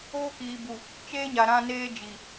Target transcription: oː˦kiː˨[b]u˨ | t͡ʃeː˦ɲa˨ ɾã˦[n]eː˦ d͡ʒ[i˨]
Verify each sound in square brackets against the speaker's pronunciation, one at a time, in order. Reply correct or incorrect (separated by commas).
correct, correct, correct